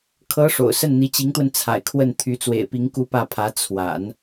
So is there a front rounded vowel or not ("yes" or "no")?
yes